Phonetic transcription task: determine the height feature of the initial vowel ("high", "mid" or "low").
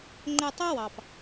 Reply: mid